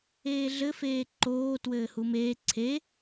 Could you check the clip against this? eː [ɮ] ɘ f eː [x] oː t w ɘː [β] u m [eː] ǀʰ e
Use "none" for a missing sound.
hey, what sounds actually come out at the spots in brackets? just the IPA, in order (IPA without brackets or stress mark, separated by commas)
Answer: ɮ, ǃ, h, eː